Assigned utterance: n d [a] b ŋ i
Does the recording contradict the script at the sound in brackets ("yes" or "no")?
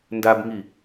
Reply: no